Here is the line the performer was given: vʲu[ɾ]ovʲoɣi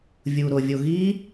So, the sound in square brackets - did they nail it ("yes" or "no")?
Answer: yes